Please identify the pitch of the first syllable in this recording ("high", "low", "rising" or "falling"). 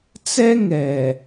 high